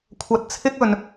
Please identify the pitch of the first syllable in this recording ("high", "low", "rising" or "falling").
low